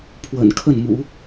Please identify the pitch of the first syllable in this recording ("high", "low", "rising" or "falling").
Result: low